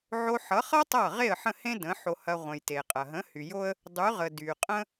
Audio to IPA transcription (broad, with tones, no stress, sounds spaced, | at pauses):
ʕ o˧ ħ ʌ˩˥ χ ʌ˥ tˤ ʌ˥˩ ʁ e˥˩ ə̯ ħ ə̃˥˩ h ẽ˥ d ə̃˩˥ ħ o˧ h ɐ˧ ʁʷ ə̃˩ j t e˩ qʼ ɐ˩ ɦ ə̃˩˥ h y˩ j o˥ ə̯ | dˤ y˩˥ ʁ ə˩ d y˩ qʼ ə̃˥